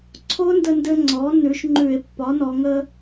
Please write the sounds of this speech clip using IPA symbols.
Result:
ǀʰ o˦˥ n d ə˧ n d ɘ˧ ŋ͡ǀ ɔ˩˥ n ʉ˩˥ ʃ ŋ͡ǃ ʉ˧˩˧ e̯ pː ɒ˩˥ n ɔ˩˧ ŋ ə˧

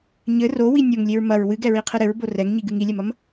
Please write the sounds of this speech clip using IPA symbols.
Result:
ɲ ɘ r o w i nʲ o ŋ lʲ e ɹ m ɐ ɹ w ɨ ɡ ɛ ɹ i qʰ ɨ ɾ ɘ ɹ b o r ɛ ŋ ɲ i ɡ ɨ ŋ i lʲ ɛ m ɐ m

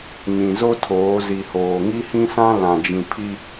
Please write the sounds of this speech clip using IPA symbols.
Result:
ɲ ĩ˨ z o˦ tʰ oː˨˦ z i˨ h oː˨ ŋ i˦ h ĩ˦ s ã˦ l ã˨ d͡ʒ ĩ˨ pʰ i˦

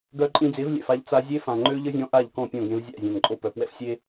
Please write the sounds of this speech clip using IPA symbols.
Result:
ɡ œ˧ ǃʼ ĩ˧ d͡z e˨˦ v lʲ ɛ̰˨ f a˧ ʎ t͡s a˧ zʲ e˦ f ã˨ ŋ͡ǃ ø˦ ʎ ə˦ zʲ ɔ̃˧ ʔ a˦˨ ʎ k ɔ̃˦˨ pʲ ɔ̃˦˨ ɡ ẽ˧ v zʲ a̰˦˨ zʲ ã˨ n ǃʼ o˦˨ p œ˨ p w ɛ̰˦ f sʲ e˦

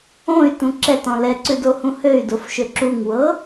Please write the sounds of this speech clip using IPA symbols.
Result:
õ y̯ t ũ ǁ ɛ t ɔ̃ l ɛ ǀ ʉ d o h ũ h ø y̯ d o f ʃ ø ǁ u ŋ w ɤ

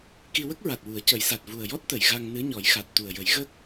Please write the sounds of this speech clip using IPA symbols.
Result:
k i˧ w ə˦˥ k̚ ɹ a˨˩ t̚ w u˨˩˦ ə̯ c ə˨˩˦ j s a˨˩ t̚ v u˨˩ ə̯ j ɔ˦˥ t̚ t̪ ə˨˩˨ j ɣ a˧ ŋ n ɨ˧˥ ɲ ɔ˨˩˦ j x a˨˩ t̚ t̪ u˨˩ ə̯ j ə˨˩˦ j ɣ ə˦˥ k̚

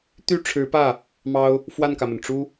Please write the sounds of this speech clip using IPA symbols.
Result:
t̪ y˥˩ ʈ͡ʂʰ ɻ̩˧˥ p ä˥˩ | m ɑ˥ ʊ̯ | f w a˥˩ n k ä˩ m ə˩ n ʈ͡ʂ u˥

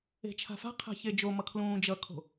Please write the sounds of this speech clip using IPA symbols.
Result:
e̤ t͡ʃʰ a̤ f a̤ qʰ a̤ ç e d͡ʒ o m ʌ kʰ l ũː d͡ʒ ʌ kʰ o̤

